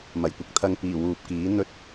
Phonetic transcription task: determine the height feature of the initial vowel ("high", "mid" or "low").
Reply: low